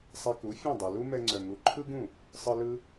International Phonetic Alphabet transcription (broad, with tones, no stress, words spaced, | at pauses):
sˤɛ˧ku˩˥ fʲɛ̃˥˩dˤu˩ lu˥mɛ˧ŋ͡ǀœ˩ŋu˩˥ ǃʰɯ˥ɡũ˥˩ | sˤɯ˧ lɯ˧